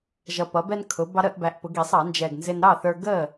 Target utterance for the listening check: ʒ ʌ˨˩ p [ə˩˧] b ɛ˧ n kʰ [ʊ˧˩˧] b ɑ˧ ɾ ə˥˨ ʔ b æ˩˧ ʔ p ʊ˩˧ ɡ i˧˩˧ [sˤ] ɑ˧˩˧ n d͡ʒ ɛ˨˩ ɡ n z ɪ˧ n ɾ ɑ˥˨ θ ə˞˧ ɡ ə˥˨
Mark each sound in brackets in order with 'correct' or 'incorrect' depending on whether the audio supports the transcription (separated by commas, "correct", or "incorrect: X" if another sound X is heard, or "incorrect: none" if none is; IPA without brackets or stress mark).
incorrect: ʌ˩˧, incorrect: ʊ˩˧, correct